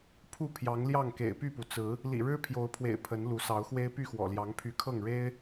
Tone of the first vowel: falling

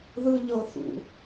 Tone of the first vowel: high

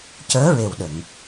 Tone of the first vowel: rising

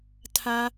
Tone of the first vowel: high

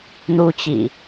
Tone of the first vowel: high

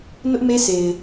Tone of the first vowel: high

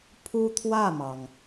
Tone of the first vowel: high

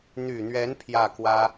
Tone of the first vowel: low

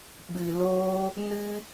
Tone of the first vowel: low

